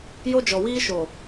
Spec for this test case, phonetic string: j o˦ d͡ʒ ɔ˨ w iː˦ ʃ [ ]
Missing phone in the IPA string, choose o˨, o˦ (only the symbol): o˨